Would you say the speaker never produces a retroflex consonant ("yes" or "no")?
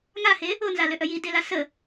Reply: yes